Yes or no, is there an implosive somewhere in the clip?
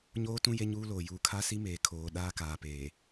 yes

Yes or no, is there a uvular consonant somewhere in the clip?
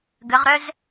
yes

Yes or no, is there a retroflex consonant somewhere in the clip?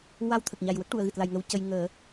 yes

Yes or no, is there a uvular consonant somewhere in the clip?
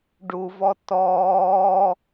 no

